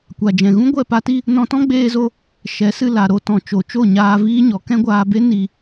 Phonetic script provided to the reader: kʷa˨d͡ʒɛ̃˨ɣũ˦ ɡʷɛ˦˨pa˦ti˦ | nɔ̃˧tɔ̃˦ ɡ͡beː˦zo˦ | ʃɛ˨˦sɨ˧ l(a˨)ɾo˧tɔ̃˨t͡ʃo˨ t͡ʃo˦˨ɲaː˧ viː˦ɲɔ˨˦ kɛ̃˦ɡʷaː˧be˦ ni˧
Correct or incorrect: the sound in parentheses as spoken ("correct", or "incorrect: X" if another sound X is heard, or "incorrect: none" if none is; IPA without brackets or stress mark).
correct